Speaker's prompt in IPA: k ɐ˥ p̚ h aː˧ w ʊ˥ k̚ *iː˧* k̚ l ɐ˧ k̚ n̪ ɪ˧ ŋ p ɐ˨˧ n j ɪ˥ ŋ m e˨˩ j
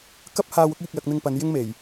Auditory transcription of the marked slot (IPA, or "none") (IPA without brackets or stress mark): iː˧